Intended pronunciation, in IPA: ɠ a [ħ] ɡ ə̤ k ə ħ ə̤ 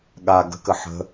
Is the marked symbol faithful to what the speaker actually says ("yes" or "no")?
no